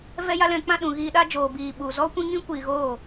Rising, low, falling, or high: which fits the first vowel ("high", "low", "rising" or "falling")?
high